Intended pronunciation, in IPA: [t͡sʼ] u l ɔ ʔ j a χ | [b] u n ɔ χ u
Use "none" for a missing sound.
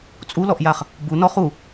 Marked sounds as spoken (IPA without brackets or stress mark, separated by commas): t͡sʼ, b